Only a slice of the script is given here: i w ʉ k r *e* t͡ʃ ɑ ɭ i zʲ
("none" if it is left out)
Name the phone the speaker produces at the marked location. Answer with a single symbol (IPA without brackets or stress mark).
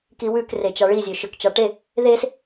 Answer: e